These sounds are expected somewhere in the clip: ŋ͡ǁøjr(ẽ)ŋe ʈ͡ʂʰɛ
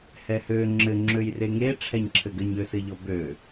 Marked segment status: incorrect: e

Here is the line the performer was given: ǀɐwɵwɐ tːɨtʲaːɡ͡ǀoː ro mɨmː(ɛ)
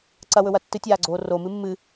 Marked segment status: incorrect: ɨ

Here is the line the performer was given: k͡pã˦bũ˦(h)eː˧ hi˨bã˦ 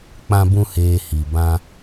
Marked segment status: correct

